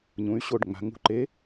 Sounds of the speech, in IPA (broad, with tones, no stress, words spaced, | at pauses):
ɲũ˩˧y̯ɕo˥˩ɖŋ͡ma̤˩˧ ŋṳ˧˩ǃe˨˥